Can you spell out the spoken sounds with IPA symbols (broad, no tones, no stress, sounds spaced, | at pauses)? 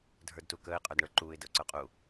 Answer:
dʱ ə˞ d t u k əː ɪ̯ qʼ ə˞ d ɳ ə˞ ǃ uː ɪ̯ d ə ʊ̯ ǀ ə˞ qʼ u